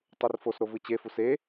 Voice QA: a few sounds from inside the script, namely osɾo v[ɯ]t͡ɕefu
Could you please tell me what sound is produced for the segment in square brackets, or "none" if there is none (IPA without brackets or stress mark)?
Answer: ɯ